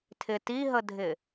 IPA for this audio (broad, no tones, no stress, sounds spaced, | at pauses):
tʰ ɪ t i ɦ ə dʱ ɪ